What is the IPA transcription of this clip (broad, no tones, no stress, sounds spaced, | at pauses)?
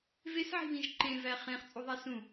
v e s ʕ i̤ β ĩ ʒ ǃ ẽ v æ χ ẽ χ t͡sʼ u ðˤ æ s ũ